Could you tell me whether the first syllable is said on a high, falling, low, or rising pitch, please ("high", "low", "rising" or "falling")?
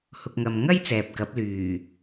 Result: low